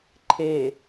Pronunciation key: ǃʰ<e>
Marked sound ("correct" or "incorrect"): correct